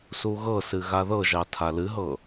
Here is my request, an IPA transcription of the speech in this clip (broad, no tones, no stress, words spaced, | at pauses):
suɣɤsɨ ɣaðɤʒɑ tʰalɨɦɤ